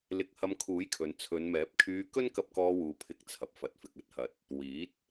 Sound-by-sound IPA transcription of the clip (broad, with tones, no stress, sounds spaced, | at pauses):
l ɪ˧ k̚ h ɐ˧ m kʰ uː˨˥ j kʰ ɵ˨ n t͡sʰ ɵ˨˧ n m ɛː˨˥ p̚ kʰ yː˧ k ɵ˥ n k ɐ˧ p̚ k ɔː˧ w uː˨ pʰ ɪ˧ k̚ t͡sʰ ɐ˨ p̚ f ɐ˨ t̚ f ɪ˨ k̚ ɐ˥ t̚ h ɐ˨ t̚ | w iː˨˥ t̚